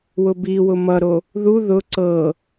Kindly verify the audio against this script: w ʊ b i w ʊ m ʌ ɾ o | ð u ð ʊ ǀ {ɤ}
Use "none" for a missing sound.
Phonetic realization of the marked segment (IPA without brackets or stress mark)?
ɤ